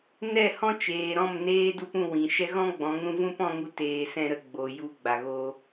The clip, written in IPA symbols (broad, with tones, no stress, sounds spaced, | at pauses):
n ɛ˦˨ h ɔ̃˦ t͡ʃ eː˨ ɾ ɔ̃˦˨ m n eː˦ d u˦ p ũ˦˨ w ĩ˨ ʃ ɛ˦ ɣ ɔ̃˦ ɡ͡b ɔ̃˨˦ ŋ ɾ ũ˧ v ũ˦ p ɔ̃˧ ŋ u˧ t eː˧ s ɛ̃˦ ɾ ə˧ ɡ͡b o˨ j u˧ ɡ͡b a˨ ɣ o˧